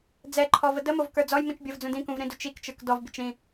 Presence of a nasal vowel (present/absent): present